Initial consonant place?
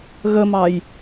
velar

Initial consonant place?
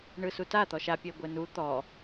retroflex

